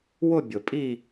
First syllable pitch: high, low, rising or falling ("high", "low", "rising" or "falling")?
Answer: falling